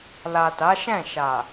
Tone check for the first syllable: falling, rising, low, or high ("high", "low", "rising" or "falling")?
low